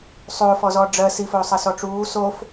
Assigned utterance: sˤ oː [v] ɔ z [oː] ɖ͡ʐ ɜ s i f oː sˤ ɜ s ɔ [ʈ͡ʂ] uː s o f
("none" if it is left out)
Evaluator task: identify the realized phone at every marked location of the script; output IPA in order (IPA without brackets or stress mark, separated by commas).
f, ɔː, ʈ͡ʂ